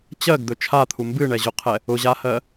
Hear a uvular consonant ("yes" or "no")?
yes